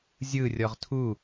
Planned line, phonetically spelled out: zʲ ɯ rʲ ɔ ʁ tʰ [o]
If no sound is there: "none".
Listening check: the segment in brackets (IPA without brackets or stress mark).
u